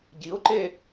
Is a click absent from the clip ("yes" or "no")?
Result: no